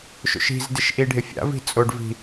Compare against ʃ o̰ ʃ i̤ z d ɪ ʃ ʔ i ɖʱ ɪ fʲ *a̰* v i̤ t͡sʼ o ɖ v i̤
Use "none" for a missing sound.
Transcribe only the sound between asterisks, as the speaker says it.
a̰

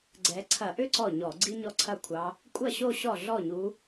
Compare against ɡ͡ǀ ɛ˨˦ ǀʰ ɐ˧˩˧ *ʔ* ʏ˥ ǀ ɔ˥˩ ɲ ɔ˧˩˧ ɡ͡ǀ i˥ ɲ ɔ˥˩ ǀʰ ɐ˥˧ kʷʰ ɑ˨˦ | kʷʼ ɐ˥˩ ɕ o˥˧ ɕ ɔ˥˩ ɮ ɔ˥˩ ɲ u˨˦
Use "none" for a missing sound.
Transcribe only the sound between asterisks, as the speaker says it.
ʔ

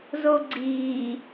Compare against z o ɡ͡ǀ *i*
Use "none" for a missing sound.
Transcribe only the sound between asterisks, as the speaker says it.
iː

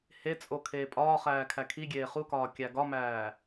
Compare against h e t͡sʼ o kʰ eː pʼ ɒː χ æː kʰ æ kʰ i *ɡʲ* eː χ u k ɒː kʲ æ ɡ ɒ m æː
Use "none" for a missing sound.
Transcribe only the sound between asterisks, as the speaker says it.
ɡʲ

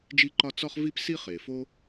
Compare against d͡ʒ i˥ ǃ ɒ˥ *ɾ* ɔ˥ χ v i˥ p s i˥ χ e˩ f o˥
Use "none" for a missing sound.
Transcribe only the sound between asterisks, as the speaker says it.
t͡s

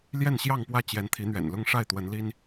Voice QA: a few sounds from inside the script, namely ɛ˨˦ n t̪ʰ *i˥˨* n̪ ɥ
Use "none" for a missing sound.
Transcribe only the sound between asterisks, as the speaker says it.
i˨˦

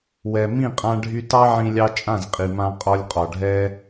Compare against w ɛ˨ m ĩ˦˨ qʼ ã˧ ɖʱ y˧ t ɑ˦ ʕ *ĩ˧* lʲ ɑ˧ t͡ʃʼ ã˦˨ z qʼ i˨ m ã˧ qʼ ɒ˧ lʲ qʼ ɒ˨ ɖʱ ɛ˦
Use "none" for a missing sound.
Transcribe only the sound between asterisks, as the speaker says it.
ĩ˧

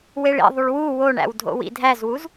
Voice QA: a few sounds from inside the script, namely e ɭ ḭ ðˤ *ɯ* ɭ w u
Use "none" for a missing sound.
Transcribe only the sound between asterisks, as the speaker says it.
u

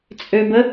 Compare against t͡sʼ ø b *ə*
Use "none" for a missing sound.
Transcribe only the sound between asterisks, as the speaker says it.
ə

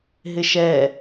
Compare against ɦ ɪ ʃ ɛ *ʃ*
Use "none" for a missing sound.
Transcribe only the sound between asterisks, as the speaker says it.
none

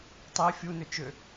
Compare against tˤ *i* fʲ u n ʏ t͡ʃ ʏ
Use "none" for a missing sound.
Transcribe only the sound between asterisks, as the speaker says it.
i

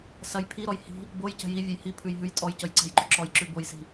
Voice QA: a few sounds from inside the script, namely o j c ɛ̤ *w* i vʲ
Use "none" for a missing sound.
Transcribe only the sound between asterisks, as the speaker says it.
j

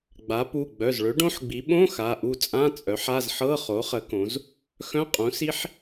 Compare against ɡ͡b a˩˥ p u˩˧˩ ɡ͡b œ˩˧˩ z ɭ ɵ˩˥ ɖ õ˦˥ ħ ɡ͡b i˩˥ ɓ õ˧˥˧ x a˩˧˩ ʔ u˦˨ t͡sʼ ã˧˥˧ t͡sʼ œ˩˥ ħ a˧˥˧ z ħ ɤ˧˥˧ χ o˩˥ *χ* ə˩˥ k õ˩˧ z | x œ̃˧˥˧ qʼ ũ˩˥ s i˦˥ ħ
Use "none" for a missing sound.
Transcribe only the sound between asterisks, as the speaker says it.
χ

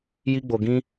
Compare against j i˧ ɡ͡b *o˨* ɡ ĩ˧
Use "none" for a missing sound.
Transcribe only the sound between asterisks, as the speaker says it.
o˨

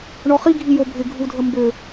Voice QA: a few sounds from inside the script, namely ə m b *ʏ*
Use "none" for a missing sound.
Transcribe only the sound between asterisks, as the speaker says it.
ʏ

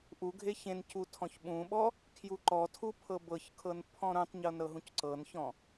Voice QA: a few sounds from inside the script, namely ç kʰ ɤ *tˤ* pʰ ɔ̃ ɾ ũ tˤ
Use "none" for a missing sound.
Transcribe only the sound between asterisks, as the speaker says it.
n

